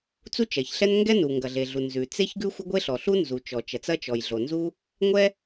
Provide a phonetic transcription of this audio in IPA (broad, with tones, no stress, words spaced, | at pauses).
t͡su˥t͡ʃɐ˩çɬɛ˥n ŋɡɛ˥nu˩ ŋɡɐ˩ɮe˩ɮu˩ nzʉ˩ t͡se˥ç ɡʉ˥xʷɐ˥ɡʷe˥ ɬɔ˩ɬu˥nzu˩ t͡ʃɔ˩t͡ʃɐ˩t͡sɐ˥t͡ʃɔ˩j ɮo˩nzu˥ | ŋʷɛ˥